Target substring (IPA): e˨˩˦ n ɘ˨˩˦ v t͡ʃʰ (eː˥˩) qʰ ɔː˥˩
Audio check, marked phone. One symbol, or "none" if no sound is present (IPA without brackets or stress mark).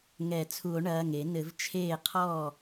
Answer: eː˥˩